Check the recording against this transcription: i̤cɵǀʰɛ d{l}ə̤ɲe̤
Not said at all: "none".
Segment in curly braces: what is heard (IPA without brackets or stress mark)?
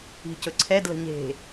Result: l